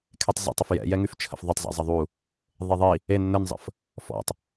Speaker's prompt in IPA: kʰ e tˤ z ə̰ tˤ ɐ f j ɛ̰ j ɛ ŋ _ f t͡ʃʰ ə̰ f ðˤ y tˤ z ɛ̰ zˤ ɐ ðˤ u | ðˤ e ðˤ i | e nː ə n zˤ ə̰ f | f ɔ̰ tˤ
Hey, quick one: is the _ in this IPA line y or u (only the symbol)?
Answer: y